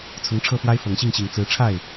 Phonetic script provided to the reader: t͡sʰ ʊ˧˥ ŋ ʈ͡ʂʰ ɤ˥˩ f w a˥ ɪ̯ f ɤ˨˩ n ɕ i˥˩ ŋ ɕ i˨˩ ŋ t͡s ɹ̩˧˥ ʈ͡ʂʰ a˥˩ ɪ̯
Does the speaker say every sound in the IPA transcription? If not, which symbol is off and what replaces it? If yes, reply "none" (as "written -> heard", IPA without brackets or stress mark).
n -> ŋ